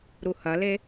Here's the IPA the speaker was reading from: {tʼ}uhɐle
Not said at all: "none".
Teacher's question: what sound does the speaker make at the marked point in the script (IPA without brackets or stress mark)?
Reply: ɾ